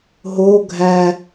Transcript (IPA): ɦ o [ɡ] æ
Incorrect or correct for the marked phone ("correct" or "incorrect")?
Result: incorrect